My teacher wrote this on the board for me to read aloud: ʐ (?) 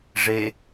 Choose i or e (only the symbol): e